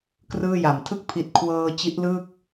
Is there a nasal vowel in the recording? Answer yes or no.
no